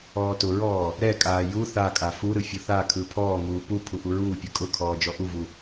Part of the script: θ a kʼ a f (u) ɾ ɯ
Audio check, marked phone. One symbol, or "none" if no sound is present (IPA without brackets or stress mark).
u